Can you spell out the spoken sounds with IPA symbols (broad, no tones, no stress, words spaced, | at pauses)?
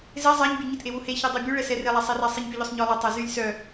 ze zˤaɲbʲœ ɲɪtʔewu heçedˤe bʲuɭɛsɛ relˠasˤɛra sˤiɲpʲuʎœsˤɲɔ lˠɪtˤa zylʲ sœ